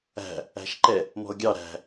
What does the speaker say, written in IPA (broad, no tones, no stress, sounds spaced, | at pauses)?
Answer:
æ̤ | æ̤ ʃ ǃ ɛ | m ɔ̤ ʊ̯ ɡʲ ɑ ɾ æ̤